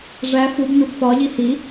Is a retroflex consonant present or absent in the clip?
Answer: present